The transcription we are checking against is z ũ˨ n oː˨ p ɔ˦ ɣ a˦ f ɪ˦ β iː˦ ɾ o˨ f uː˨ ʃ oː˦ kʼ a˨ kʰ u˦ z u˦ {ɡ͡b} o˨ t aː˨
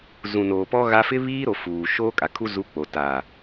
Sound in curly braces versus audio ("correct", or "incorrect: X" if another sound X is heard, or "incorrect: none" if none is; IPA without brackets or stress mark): incorrect: k͡p